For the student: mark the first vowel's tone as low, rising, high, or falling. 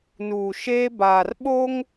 low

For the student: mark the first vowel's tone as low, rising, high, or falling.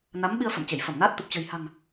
rising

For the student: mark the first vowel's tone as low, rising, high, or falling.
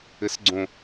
rising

